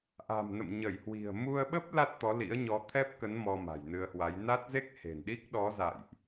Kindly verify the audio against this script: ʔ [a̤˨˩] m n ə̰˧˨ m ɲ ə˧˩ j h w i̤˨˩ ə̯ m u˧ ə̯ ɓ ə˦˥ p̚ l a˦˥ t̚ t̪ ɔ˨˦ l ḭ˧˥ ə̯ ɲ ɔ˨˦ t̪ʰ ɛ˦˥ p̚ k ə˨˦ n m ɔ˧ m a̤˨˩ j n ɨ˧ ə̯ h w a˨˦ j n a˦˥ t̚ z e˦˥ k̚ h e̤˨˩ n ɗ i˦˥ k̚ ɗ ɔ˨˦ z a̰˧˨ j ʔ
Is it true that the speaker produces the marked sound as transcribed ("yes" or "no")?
yes